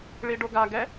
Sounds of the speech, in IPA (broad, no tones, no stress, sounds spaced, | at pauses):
ɭ i ɖ o ɡ a ɡ ɛ